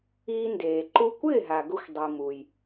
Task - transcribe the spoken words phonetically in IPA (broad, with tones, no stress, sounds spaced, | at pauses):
iː˧ n d eː˩ ǃ u˧ kʷ ɪː˥˩ ɦ a˩ ɡ ʊ˧ xʷ dˤ i˩ m u˩ j